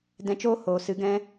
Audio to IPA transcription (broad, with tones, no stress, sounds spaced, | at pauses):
d ɛ̃˧ t͡ʃ oː˦ h oː˨ s ɨ˨˦ ɡ ɛ̃˦